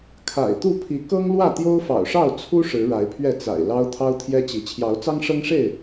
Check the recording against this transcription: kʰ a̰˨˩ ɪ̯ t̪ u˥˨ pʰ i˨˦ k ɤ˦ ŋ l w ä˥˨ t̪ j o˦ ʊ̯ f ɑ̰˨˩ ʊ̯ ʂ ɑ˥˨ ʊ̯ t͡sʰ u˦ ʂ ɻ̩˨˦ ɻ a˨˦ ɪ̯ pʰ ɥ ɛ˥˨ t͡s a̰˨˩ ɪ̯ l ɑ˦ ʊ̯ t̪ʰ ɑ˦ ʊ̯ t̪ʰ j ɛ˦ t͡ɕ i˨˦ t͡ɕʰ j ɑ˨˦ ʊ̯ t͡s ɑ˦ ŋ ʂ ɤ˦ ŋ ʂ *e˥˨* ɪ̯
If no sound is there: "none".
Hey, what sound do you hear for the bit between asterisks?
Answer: e˥˨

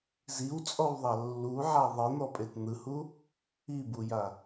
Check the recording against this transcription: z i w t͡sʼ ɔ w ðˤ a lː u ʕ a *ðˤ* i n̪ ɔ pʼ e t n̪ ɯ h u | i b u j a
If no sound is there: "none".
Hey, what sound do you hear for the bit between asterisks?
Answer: ðˤ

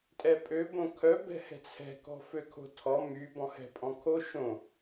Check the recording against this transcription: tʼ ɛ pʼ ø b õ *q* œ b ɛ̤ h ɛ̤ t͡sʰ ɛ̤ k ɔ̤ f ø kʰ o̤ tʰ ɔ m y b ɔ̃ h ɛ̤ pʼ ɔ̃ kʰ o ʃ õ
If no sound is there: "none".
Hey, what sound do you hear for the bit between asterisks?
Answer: kʰ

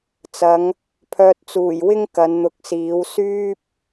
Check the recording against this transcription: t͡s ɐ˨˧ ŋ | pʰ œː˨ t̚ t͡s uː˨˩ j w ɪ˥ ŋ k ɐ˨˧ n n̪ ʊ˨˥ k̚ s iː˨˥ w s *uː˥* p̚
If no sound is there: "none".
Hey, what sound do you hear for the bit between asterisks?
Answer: yː˥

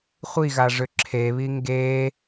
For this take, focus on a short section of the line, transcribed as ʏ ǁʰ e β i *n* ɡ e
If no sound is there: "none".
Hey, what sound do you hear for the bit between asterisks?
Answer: ŋ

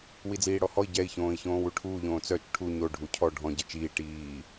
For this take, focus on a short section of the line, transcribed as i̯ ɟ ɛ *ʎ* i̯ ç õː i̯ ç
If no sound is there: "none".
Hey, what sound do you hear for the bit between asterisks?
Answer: none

